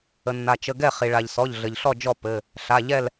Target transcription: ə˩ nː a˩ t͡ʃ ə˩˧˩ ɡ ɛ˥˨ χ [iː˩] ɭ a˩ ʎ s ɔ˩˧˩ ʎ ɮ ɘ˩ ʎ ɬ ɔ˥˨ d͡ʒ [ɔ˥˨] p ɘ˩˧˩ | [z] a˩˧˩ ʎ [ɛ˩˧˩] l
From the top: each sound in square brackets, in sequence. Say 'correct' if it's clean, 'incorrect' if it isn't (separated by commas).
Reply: incorrect, correct, incorrect, incorrect